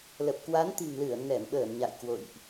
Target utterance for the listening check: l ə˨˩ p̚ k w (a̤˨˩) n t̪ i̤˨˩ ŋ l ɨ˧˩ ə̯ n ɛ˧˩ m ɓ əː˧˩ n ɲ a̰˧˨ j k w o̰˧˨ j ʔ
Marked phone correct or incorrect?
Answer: incorrect